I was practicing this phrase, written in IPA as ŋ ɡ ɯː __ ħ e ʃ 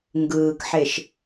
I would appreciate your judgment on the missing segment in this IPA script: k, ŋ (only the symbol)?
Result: k